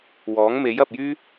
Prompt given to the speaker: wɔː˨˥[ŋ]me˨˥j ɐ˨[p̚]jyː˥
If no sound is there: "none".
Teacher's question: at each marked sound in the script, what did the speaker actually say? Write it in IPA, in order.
ŋ, p̚

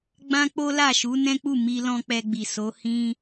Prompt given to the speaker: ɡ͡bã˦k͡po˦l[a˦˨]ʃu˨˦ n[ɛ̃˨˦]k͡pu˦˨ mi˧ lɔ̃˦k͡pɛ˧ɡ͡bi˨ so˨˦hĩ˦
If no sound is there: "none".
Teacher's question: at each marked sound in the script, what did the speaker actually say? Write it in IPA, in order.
a˦˨, ɛ̃˦

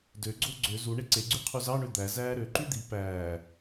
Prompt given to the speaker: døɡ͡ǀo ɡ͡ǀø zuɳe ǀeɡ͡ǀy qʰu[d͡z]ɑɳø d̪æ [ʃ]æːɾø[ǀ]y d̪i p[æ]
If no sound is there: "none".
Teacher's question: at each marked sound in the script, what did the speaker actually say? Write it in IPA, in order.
z, z, ǃ, æː

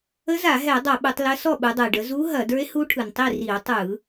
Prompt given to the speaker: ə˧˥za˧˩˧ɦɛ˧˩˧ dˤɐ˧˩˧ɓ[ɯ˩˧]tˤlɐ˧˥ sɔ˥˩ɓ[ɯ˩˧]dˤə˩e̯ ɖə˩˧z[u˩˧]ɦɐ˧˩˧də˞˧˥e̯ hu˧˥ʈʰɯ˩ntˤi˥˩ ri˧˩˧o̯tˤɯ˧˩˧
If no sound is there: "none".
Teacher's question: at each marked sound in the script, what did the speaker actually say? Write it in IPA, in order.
ɯ˩˧, ɯ˩˧, u˧˥

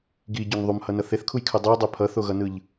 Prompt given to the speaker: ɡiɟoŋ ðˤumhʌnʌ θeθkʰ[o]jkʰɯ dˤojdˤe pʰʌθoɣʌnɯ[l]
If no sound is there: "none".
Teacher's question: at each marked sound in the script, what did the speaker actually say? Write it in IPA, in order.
u, ʎ

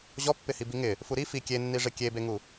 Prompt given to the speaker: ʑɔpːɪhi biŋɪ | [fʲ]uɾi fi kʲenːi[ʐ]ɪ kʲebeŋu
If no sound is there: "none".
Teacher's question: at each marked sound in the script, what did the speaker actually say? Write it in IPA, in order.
f, ʐ

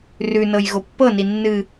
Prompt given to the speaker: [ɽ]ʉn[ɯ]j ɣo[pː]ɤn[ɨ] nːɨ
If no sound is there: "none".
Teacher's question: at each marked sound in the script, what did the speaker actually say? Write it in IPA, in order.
r, ɤ, pː, i

